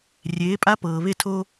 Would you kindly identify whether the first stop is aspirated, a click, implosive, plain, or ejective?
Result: ejective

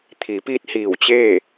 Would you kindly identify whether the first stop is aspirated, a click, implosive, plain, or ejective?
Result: aspirated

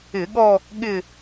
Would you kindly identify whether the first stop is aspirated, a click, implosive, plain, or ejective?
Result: implosive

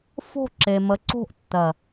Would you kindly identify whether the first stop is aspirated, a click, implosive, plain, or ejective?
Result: click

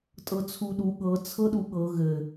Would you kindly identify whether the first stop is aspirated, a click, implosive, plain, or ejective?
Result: ejective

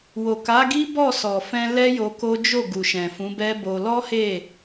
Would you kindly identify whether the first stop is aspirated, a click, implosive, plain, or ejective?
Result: plain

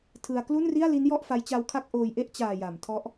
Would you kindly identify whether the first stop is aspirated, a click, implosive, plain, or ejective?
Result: aspirated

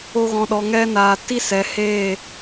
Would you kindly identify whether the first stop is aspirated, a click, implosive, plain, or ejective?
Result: implosive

